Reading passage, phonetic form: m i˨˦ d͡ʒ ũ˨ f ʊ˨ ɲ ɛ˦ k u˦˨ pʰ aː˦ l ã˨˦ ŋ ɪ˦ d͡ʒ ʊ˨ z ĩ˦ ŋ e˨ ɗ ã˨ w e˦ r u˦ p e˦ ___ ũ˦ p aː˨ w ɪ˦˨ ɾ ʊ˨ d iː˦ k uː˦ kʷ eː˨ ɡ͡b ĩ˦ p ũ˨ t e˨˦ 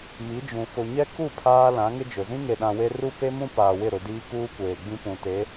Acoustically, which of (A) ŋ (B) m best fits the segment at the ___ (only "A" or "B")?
B